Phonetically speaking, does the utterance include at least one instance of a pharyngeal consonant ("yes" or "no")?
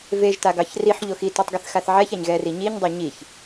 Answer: yes